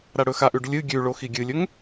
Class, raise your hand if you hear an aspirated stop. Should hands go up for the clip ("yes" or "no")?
no